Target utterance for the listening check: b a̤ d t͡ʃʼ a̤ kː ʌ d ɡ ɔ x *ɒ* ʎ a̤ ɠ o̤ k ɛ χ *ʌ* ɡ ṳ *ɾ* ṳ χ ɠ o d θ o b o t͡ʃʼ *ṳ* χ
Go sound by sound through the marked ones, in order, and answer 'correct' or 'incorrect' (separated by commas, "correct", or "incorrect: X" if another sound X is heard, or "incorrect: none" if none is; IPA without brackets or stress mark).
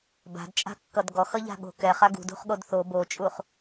incorrect: ʌ, incorrect: a, incorrect: d, incorrect: u